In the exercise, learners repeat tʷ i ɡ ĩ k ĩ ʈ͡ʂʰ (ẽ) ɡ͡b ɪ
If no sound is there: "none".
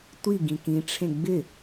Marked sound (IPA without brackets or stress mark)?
ẽ